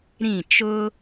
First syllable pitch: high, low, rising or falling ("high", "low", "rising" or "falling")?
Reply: falling